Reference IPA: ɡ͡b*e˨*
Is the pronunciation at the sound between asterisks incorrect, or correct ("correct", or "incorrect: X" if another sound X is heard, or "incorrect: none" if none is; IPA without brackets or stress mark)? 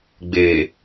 incorrect: eː˨